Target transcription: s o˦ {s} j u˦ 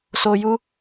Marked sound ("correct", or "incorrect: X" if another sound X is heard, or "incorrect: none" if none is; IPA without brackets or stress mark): incorrect: none